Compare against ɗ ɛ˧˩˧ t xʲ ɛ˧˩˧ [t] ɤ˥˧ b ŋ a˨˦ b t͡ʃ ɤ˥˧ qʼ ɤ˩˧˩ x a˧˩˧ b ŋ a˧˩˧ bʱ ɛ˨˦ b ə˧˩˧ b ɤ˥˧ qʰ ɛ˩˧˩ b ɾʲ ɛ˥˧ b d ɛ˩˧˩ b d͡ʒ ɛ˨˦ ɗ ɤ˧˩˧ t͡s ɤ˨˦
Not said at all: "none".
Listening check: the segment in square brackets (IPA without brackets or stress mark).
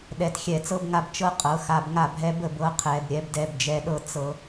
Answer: t͡s